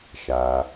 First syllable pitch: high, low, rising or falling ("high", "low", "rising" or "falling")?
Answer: low